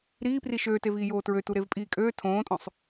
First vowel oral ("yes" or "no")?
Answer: yes